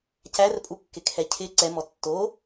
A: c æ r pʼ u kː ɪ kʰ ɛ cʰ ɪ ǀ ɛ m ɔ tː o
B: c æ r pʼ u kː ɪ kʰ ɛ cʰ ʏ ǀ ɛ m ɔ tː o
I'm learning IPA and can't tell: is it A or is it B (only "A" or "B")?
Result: A